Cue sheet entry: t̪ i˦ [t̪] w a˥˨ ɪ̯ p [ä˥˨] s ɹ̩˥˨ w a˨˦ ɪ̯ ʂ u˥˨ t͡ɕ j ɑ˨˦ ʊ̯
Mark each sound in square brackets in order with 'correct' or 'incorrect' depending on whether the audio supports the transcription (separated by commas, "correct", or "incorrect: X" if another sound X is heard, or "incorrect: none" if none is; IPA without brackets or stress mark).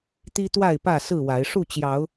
correct, correct